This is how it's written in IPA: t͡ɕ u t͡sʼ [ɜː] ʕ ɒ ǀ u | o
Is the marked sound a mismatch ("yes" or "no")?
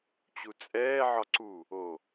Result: yes